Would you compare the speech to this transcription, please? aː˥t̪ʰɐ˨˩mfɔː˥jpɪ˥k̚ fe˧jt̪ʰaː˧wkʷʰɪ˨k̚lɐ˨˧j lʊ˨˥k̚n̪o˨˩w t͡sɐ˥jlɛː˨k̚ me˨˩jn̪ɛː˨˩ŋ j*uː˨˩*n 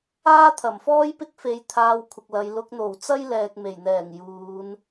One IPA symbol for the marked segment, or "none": uː˨˧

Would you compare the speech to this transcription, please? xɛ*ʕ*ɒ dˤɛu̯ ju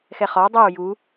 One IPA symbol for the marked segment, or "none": χ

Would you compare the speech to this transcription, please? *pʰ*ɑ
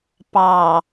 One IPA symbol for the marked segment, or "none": p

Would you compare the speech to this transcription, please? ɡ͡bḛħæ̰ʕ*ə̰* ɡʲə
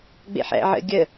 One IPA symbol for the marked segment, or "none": ə̰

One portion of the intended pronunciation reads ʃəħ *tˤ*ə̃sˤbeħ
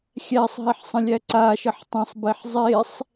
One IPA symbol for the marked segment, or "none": tˤ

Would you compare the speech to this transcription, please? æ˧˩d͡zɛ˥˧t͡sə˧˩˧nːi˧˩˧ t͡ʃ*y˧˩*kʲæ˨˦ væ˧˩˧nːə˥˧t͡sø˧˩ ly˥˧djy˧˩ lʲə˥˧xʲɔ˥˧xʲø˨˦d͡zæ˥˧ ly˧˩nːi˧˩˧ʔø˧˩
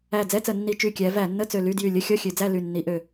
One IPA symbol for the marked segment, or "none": y˧˩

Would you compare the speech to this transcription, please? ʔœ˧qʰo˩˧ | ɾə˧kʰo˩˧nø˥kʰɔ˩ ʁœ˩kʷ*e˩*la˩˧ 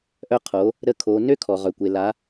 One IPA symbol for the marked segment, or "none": e˩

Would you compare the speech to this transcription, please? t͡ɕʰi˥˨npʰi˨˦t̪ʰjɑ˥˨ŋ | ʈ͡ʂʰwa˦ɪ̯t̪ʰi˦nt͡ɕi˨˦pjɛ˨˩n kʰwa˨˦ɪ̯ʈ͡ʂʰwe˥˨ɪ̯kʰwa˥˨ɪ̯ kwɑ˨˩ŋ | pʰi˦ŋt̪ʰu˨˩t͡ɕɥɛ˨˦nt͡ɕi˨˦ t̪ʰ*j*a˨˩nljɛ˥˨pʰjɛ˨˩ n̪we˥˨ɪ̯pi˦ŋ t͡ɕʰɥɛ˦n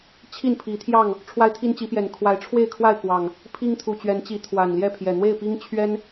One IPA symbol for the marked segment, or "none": w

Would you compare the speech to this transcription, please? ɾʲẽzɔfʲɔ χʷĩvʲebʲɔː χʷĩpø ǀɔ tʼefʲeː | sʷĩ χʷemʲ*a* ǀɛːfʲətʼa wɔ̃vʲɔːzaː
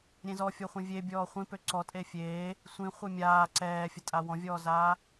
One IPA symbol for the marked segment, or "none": aː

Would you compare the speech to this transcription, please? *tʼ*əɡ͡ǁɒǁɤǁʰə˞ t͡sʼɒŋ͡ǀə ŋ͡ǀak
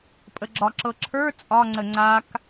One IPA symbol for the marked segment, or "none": pʼ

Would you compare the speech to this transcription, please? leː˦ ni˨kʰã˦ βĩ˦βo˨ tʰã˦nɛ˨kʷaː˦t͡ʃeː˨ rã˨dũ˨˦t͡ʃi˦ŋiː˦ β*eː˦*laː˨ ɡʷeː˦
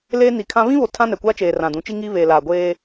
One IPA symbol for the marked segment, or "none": eː˨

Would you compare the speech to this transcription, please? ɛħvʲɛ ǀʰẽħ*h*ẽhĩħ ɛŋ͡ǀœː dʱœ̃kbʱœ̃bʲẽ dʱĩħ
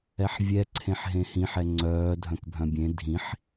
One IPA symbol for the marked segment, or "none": ɦ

